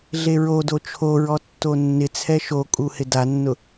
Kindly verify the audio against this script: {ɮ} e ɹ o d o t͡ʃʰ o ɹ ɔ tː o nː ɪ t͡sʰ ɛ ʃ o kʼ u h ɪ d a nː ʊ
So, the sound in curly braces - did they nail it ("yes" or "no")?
yes